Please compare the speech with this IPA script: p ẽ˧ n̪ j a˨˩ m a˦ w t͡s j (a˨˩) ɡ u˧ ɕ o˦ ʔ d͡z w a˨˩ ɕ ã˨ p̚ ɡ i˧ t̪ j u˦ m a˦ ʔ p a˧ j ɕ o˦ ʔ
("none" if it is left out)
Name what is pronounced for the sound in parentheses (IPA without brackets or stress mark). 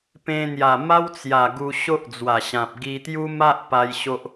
a˨˩